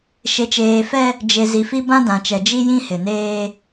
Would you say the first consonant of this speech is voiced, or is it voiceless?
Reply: voiceless